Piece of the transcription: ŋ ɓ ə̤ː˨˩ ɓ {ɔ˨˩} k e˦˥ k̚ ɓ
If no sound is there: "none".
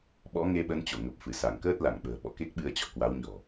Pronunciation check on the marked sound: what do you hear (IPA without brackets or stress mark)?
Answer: ɔ̰˧˨